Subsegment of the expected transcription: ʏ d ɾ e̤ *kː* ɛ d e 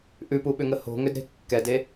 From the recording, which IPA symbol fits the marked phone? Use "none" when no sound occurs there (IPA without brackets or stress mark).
kː